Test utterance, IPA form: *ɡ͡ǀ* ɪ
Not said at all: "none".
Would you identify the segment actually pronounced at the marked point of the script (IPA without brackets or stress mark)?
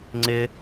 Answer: ŋ͡ǀ